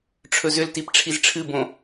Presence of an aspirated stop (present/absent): present